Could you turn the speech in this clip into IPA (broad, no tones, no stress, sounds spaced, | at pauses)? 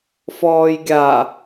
f ɔː j ɡʲ a